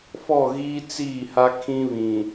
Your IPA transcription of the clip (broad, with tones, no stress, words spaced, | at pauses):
fɔ˦˨ɣiː˦ t͡siː˦˨ha˦ kʰĩ˦βĩ˨